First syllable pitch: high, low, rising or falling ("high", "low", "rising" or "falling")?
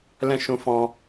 high